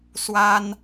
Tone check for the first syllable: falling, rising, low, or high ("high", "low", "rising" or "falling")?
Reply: high